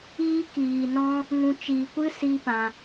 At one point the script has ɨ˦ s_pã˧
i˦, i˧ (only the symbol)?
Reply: i˦